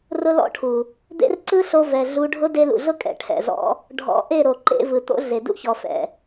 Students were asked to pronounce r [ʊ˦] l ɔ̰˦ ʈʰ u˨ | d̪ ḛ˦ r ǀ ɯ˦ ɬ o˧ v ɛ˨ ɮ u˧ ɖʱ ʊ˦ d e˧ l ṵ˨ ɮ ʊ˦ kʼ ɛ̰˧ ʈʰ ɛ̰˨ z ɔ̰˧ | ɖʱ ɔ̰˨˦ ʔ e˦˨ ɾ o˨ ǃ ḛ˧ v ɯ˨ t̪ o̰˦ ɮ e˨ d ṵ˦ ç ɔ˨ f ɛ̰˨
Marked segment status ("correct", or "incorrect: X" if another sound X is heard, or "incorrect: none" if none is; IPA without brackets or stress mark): correct